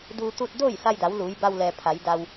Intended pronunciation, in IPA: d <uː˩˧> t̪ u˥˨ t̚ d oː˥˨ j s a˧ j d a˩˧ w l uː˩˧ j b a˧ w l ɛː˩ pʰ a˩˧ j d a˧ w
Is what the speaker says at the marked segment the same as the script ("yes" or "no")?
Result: no